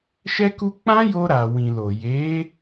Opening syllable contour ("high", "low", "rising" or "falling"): high